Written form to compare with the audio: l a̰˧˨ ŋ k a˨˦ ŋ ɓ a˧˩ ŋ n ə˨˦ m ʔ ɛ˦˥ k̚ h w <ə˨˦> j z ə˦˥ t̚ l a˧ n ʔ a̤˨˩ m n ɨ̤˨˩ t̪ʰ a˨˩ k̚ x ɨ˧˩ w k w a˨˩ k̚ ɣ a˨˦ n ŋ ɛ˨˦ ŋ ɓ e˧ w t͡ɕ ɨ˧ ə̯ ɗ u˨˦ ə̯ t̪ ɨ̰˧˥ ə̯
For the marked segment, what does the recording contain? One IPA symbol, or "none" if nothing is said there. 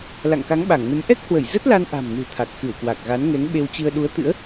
ə˧˩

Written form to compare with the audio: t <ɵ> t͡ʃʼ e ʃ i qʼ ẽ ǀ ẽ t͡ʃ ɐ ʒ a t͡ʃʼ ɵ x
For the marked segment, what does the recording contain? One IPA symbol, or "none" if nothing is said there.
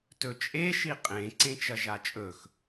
ɵ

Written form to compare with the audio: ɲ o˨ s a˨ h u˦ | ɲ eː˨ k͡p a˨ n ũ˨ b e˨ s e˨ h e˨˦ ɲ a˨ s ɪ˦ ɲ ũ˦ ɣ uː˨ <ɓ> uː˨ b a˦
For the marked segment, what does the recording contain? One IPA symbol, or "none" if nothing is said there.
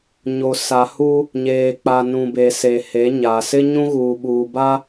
ɓ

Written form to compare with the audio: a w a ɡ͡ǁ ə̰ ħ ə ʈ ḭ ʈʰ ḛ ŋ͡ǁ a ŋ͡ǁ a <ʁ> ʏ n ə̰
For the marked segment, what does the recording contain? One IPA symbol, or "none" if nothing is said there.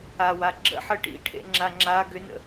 ɡ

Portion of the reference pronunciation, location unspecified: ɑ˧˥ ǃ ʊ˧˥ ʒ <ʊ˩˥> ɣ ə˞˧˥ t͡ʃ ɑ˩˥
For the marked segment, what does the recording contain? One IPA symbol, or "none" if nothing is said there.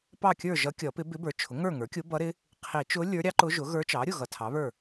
ʊ˩˥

